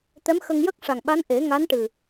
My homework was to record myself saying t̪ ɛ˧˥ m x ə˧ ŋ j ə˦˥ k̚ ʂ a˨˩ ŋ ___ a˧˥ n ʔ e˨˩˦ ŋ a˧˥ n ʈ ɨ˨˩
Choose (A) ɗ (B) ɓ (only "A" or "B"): B